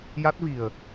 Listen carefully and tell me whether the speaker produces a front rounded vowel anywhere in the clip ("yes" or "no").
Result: no